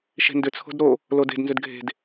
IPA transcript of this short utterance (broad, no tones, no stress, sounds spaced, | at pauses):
ʃ e̤ n d ʏ t͡sʰ o̤ d ɾ o | l o d e̤ d n z ʏ d ɡʱ e̤ d